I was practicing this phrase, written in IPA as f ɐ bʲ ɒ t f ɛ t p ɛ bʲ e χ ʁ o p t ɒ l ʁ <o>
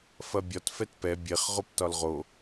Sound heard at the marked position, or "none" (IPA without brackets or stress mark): o